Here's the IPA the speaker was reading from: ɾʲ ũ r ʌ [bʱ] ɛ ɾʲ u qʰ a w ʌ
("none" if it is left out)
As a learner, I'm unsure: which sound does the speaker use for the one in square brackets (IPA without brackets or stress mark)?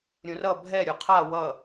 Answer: bʱ